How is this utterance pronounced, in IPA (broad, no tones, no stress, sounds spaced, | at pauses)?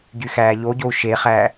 ɟ y x æː ʎ o ɟ o u̯ ʃ e χ æ